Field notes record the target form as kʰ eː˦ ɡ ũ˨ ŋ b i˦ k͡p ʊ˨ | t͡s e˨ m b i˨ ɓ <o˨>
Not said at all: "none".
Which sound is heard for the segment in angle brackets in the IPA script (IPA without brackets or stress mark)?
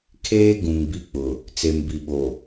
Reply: o˨